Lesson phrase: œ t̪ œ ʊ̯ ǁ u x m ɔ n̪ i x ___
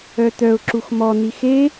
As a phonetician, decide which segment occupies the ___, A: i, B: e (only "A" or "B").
B